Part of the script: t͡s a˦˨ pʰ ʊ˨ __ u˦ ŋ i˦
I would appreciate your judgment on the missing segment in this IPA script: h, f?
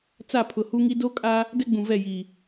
h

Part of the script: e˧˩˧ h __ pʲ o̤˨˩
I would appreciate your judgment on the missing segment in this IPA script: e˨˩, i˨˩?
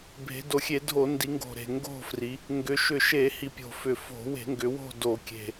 i˨˩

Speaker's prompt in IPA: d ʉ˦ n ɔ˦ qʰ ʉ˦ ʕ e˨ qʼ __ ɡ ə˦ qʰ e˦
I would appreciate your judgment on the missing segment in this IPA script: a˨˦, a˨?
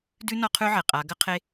a˨˦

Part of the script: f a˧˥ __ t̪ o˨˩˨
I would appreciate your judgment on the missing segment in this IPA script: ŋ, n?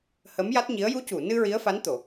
n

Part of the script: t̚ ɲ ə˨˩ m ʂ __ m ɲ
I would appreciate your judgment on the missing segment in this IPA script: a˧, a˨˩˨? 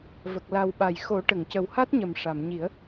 a˨˩˨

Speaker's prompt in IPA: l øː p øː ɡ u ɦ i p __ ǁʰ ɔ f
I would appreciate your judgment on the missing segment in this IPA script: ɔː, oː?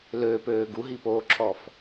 oː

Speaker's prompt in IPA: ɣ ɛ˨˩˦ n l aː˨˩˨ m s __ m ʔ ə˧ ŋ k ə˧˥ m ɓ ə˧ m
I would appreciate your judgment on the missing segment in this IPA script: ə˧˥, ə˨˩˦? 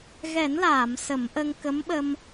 ə˨˩˦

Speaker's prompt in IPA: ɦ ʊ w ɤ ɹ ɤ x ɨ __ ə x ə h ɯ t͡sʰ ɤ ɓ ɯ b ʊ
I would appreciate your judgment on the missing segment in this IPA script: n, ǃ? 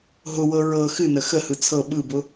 n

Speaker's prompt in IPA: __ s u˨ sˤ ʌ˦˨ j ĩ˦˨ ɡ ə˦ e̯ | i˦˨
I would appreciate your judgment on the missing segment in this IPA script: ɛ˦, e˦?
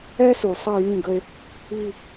ɛ˦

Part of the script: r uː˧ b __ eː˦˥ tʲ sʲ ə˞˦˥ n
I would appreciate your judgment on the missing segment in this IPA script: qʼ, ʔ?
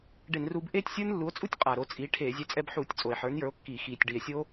ʔ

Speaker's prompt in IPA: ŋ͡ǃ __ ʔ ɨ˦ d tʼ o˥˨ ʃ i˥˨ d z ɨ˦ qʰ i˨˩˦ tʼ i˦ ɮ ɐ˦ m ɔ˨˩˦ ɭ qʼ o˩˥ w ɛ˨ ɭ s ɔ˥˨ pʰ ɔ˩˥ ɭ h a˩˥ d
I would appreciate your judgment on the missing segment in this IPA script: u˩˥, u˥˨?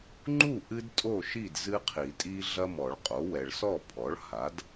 u˥˨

